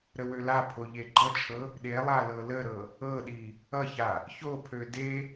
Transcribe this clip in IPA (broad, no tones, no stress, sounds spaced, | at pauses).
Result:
ɾ ə w ø l a pʰ o ʎ e ɡ͡ǃ ʌ t͡ʃʰ ɤ | ɗ e lˠ a l ɤ l ə ɾ ɤ | ɤ ɗ i | ʌ ç a | ç o pʰ ø d e